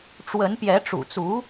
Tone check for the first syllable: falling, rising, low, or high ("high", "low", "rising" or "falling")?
rising